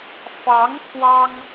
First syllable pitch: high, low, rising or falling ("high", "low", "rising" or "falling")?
rising